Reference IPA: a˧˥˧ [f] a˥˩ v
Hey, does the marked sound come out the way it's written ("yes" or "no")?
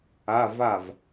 no